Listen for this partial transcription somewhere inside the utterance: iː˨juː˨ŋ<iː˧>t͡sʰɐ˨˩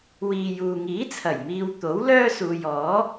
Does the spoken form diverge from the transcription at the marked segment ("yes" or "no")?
yes